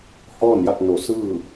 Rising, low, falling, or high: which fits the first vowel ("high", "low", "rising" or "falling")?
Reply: falling